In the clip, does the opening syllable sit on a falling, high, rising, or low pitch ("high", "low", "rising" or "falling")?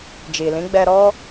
low